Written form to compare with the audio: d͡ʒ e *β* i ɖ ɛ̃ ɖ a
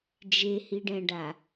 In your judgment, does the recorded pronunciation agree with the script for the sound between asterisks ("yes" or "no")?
no